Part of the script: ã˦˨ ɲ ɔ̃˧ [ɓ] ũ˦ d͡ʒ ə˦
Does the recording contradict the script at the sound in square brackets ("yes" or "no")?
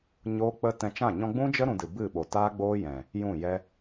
yes